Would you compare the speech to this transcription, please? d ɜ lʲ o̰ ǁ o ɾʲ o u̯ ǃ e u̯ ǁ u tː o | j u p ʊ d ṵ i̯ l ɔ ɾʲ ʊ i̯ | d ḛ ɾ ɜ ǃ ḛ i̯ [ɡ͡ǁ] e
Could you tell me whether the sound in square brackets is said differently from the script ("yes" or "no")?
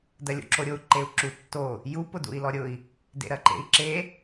yes